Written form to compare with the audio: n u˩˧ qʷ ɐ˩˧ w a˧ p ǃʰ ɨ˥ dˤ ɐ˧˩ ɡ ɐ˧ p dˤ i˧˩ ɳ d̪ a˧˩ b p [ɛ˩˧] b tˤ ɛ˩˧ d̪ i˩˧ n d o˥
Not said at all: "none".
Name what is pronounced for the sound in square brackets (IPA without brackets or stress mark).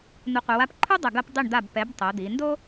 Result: ɛ˩˧